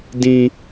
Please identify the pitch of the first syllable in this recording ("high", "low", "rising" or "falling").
high